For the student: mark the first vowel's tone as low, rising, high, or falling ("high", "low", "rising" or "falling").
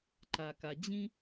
low